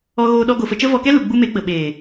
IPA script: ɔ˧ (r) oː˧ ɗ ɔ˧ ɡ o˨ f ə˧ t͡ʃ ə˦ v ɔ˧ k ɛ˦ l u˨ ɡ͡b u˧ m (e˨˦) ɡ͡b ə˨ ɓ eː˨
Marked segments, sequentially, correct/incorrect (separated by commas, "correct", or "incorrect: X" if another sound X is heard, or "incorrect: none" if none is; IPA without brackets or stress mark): incorrect: ɣ, correct